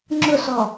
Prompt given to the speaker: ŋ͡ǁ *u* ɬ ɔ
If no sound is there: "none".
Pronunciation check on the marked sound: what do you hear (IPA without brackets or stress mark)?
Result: ʊ